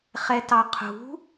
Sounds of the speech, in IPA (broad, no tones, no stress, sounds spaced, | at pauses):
χ ɛ t ɑ qʰ ṳ